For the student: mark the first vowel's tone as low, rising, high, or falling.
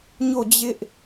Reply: falling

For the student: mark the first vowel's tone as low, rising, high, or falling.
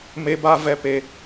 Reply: high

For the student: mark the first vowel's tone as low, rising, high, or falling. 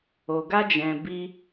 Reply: low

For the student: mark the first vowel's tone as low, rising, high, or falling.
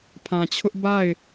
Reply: low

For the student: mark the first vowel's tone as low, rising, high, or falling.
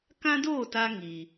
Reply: high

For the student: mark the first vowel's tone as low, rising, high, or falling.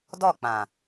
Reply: falling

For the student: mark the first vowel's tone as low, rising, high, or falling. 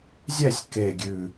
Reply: falling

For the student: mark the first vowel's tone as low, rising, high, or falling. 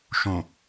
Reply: low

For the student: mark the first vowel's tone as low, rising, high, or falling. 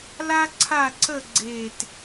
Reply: high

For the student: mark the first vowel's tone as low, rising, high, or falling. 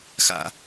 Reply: high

